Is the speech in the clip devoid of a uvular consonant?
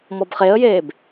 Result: no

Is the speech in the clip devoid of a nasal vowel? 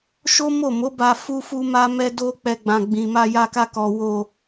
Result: no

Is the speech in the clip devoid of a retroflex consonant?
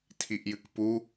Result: yes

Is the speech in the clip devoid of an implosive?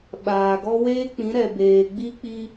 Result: no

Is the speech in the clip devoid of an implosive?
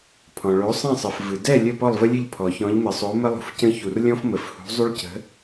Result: yes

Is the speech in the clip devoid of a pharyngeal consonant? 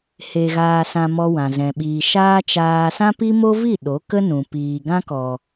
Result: yes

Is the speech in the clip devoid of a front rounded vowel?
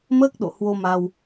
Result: yes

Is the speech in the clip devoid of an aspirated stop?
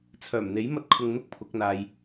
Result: no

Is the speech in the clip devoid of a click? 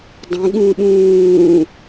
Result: yes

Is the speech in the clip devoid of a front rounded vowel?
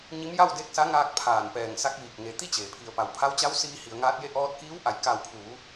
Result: yes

